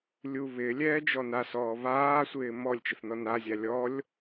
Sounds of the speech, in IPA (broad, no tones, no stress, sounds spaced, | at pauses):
lʲ u β ɪː lʲ ɛː d͡ʒ ɔ n a s ɔː β aː sʷ ɪː m ɔ lʲ t͡ʃ ɪ θ n ɔ n a zʲ a lʲ ɔ lʲ